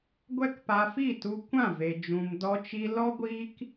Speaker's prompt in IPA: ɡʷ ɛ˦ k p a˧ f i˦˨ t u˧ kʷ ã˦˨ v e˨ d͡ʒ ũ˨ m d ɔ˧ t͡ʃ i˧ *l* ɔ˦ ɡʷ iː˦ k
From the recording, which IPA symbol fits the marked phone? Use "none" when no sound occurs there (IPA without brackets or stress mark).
l